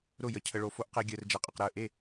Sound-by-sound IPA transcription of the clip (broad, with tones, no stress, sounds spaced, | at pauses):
ɾ ʊ˥˩ j ə˧ cʰ ə˧ ɭ o˧ f o˧ ʔ q e˧ ɡʲ əː˧ r d͡ʒ ɛ˧ qʼ ə˧ q ɾ əː˥˩ ʔ e˥˩